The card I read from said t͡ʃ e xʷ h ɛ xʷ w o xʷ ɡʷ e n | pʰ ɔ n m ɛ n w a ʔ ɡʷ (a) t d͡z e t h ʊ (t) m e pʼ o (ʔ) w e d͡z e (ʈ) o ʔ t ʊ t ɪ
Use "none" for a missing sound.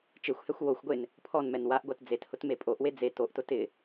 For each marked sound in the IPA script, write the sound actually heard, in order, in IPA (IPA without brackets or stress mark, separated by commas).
a, t, ʔ, t